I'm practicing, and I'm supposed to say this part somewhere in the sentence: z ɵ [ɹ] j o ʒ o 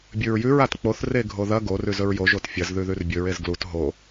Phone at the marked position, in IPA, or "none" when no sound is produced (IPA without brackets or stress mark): ɹ